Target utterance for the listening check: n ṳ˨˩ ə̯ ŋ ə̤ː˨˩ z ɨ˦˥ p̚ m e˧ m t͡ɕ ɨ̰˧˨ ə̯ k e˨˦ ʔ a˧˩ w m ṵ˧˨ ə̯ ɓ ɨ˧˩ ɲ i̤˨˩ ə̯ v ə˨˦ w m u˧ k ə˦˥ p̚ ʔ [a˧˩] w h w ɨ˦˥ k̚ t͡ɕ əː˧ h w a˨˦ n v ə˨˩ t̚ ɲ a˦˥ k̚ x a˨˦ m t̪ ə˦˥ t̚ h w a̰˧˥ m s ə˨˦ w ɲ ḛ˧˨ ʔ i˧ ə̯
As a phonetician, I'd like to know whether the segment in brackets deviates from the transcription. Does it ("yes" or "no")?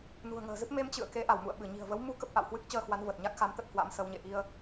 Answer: yes